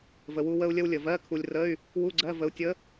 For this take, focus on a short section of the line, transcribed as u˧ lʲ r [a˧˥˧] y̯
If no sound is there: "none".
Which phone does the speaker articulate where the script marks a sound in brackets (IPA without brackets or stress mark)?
ə˧˥˧